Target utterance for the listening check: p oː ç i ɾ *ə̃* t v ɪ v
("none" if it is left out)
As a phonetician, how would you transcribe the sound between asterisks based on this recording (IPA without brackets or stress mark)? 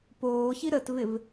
ə